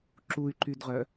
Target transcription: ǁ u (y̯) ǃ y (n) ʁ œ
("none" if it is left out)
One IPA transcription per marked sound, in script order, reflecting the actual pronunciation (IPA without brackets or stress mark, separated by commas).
y̯, d